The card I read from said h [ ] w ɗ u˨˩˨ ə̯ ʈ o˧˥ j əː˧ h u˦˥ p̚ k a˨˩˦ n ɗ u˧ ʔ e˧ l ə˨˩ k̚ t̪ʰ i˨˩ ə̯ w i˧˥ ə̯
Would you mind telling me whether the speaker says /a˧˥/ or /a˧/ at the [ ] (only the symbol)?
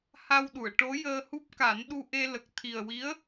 a˧